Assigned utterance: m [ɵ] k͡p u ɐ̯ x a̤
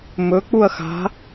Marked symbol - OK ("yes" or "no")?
yes